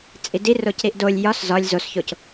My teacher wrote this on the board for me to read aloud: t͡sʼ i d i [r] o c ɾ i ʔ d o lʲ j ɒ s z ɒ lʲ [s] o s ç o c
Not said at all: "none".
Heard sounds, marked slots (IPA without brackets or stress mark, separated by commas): r, z